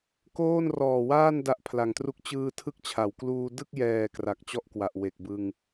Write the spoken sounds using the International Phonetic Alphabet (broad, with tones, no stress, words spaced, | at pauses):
koː˥˩nrɔː˨˩waː˥˩n da˦˥ʔpʰla˨˩ŋtru˥˩k̚ t͡ɕɯː˧ tʰɯ˥˩k̚t͡ɕʰa˩˦w kluː˧ dɯ˥˩k̚jɛː˨˩ kra˨˩k̚t͡ɕɔ˥˩ʔkwa˨˩ʔ we˨˩k̚bɯ˧ŋ